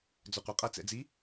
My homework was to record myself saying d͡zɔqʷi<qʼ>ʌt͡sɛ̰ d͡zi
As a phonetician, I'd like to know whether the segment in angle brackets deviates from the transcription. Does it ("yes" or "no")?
no